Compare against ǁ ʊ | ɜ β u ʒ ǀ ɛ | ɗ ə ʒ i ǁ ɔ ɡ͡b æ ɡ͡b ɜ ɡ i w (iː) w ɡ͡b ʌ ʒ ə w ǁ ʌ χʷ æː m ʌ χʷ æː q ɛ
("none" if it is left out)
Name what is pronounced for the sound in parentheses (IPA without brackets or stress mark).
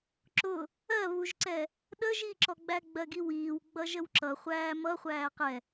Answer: iː